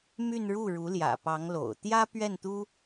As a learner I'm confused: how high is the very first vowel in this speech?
high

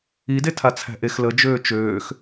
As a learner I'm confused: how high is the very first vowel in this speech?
high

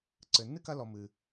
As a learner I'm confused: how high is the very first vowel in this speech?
mid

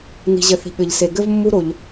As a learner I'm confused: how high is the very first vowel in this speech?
high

